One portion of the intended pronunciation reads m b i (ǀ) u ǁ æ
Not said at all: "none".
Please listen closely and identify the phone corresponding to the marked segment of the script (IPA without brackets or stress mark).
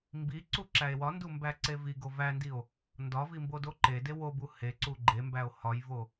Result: ǀ